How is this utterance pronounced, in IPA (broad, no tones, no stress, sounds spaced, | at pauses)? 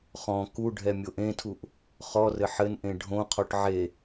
χ ɔ̃ k u ɖʱ ɛ mʲ o ʔ ẽ tʰ u ʔ | χ ɔ r ɘ ħ ɘ n ʔ ẽ ɖʱ õ qʰ ɔ ʈ ʕ e